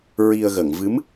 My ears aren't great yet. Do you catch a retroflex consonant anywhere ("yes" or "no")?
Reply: no